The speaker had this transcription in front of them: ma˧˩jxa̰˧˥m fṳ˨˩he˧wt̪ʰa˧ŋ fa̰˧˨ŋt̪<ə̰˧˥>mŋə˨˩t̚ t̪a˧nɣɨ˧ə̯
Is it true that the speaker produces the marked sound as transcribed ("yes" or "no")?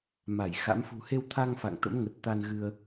yes